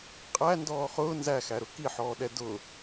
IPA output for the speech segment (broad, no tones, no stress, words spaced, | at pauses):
qʼændɔː χʊː nzæxæɾʊ kiħɔːɗɛ dʊ